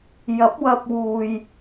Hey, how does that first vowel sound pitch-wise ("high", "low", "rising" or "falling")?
rising